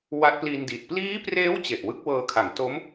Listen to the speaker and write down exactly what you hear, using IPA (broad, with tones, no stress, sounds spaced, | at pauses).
w a˦˥ t̚ p l iː˧ n d i˨˩ t̚ p l iː˦˥ p r eː˦˥ w t͡ɕ e˨˩ ʔ w ɯ˦˥ k̚ w ɤː˧ kʰ a˩˦ ŋ t o˦˥ m